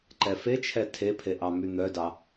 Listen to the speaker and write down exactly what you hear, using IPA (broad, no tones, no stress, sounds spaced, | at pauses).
ǃ ɛ f e t͡ʃʰ ɛ tʰ e pʰ e ʔ ɑ m y n̪ œ d ɑ